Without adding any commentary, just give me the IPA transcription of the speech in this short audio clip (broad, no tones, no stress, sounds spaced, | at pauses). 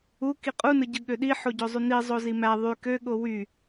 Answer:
u k i qʼ u n ɯ ɟ ɯ ɠ ø ɗ i ħ o ɟ o zˤ y n i zˤ o z i m æ ðˤ y k ø ɠ o w y